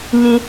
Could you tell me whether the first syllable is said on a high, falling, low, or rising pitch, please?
high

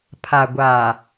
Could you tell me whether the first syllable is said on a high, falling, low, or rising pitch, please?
low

